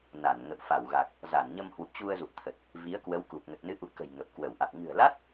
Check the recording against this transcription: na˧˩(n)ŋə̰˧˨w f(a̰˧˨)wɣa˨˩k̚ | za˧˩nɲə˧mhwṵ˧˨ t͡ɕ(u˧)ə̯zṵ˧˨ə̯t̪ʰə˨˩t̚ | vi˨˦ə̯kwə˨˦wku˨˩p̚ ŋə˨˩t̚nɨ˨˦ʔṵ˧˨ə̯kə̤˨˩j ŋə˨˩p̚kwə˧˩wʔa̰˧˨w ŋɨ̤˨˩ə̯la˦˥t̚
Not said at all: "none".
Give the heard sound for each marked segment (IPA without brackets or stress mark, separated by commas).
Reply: n, a˧˩, u˧